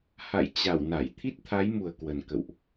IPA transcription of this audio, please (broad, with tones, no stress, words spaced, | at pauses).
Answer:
ha̰˧˨j t͡ɕa˧˩w na˧˩j t̪ʰi˦˥t̚t̪ʰa˨˦jmu˨˩ə̯ kwə˨˩nkə̰˧˨wʔ